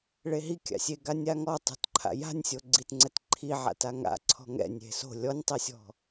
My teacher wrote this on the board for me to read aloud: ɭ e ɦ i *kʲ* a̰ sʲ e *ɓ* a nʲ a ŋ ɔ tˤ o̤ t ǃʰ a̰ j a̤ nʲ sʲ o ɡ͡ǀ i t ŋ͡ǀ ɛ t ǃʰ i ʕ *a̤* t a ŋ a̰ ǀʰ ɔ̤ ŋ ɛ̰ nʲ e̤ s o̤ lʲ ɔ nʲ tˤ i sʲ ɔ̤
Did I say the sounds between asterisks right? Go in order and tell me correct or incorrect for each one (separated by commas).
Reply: correct, incorrect, incorrect